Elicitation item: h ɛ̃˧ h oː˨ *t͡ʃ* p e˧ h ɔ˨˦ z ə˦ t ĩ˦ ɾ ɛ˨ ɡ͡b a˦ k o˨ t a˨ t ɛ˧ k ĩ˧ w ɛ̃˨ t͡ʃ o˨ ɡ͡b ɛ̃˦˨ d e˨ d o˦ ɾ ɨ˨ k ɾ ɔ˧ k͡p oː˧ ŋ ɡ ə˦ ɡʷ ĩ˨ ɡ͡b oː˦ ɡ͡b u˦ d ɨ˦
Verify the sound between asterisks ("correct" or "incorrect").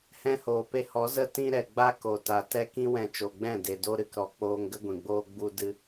incorrect